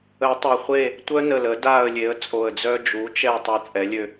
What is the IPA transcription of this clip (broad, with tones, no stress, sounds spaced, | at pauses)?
ə˨˩˦ tˤ o˨˩ χʷ e˦˨ | tʷ œ˦ n ə˨˩ l ə˨˩˦ d a˦˨ ə̯ lʲ e˩˥ ə̯ t͡sʼ o˨˩ ə̯ d͡z œ˦ d͡ʒ u˩˥ t͡ʃ ɛ˦˨ tˤ a˦ t͡sʼ ɛ˩˥ lʲ ø˦˨